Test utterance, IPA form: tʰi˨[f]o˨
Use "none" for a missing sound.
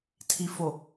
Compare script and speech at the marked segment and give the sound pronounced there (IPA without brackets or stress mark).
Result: f